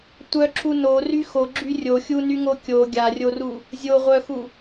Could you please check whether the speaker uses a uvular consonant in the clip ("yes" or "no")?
yes